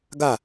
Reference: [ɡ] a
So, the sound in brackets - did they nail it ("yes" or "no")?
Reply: yes